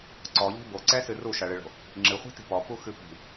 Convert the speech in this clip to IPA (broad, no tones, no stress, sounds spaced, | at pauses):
ǀ ɔ ʎ i̤ b o ǀ ɛ s ɨ r u ʃ ɐ ɭ ɨ ɭ o̤ | ŋ͡ǁ ɨ χʷ i̤ t i̤ p ɔ p u x ɨ p i̤